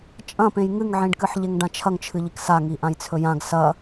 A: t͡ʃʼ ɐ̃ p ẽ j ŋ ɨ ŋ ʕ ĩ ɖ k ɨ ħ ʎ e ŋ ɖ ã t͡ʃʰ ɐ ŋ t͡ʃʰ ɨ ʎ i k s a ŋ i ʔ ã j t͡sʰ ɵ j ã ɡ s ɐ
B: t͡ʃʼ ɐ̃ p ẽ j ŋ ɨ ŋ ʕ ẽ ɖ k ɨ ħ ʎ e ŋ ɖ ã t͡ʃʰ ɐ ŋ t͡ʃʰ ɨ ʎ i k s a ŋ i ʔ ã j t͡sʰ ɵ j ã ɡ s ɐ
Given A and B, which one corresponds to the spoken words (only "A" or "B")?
A